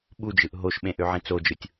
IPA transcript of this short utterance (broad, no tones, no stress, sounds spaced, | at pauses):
ɓ u d͡ʒ ɯ ʔ ɦ o ʃ ɓ ẽ ʔ ø ʕ ĩ t͡s o d͡ʒ ɯ tʲ